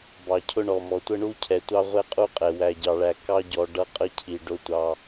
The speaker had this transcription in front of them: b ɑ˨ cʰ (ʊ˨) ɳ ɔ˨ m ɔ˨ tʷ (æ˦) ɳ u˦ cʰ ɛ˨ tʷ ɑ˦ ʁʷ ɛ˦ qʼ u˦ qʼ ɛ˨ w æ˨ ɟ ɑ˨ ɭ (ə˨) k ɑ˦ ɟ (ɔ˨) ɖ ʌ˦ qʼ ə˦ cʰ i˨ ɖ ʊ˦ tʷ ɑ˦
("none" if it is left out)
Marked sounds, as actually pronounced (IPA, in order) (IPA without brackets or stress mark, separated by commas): ʊ˦, ə˦, æ˨, ɔ˨